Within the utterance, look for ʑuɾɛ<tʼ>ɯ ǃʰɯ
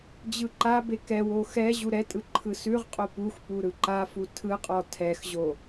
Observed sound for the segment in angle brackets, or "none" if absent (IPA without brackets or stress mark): tʼ